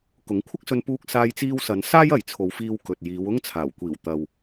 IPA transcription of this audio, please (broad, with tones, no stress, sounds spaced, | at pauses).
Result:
k ʊ˨˥ ŋ kʷʰ ɐ˥ k̚ s ɵ˧ n p uː˧ k̚ s aː˧ j t͡s iː˧ w s ɐ˨˧ n s aː˥ j ɐ˨ j t͡sʰ o˨˧ w f iː˧ w k ɵ˨ t̚ j iː˨˧ w ʊ˥ ŋ t͡sʰ aː˨˩ w kʷ iː˨˩ w t̪ ɐ˨ w